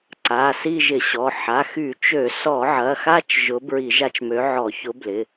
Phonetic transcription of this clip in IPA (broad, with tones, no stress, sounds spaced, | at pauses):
ǀ a˩˧˩ s i˦˨ ʒ ɪ˧˩˧ ɕ ɔ˩˧˩ ħ a˩˧˩ x y˧˩˧ t͡ʃ ø˧˩˧ s ɔ˧˩˧ ʕ ɐ˩˧˩ x a˦˨ t͡ʃ ʒ ʊ˨˥ b ɹ i˧˩˧ ʒ a˦˨ t͡ʃ m ø˨˥ ʕ ɔ˧˩˧ ç ʊ˨˥ b l ɪ˩˧˩